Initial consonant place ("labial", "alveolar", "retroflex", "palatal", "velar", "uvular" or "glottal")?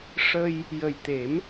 retroflex